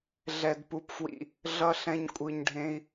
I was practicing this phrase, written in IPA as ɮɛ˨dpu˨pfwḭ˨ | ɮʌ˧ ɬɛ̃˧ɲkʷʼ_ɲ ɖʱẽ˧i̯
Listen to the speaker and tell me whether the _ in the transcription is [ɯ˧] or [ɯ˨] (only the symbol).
ɯ˨